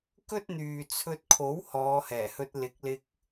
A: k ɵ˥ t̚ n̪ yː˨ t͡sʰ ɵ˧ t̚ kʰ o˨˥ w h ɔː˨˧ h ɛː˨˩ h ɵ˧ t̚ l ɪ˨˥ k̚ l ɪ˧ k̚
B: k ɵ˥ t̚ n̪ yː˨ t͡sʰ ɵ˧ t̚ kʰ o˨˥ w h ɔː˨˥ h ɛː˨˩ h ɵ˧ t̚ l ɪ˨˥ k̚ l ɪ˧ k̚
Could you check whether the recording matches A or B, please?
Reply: A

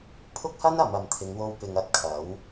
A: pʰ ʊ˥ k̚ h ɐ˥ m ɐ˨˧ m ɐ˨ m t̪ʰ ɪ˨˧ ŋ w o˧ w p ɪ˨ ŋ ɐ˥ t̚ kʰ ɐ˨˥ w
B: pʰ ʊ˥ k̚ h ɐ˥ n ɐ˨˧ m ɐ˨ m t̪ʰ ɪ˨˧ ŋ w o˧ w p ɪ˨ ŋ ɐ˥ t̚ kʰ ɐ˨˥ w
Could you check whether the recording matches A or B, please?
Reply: B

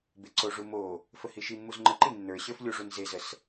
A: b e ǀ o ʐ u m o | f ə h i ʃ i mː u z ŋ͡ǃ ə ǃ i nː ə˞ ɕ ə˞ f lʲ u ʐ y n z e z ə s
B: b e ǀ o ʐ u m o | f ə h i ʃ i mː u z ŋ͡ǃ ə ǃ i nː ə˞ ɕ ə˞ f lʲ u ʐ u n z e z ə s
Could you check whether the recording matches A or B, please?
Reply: B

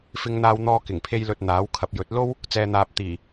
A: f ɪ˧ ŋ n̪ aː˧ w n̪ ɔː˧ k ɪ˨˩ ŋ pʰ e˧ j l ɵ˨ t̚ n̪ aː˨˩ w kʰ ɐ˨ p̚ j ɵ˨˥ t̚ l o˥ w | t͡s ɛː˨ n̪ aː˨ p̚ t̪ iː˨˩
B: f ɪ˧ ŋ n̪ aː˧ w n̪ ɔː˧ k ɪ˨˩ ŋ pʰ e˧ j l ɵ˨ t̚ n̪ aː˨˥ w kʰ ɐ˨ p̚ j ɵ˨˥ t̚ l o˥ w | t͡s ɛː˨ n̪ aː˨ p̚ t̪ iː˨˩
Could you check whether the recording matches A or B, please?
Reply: B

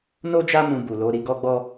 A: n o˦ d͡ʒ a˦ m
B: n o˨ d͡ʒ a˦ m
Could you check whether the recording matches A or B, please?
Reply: A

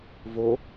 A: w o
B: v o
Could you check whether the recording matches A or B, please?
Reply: B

